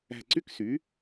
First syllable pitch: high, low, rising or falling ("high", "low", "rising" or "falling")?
falling